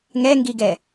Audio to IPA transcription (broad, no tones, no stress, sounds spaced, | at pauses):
ŋ ɛ ŋ ɡ i ɡ ɛ